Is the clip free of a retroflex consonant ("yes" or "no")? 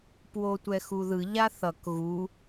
yes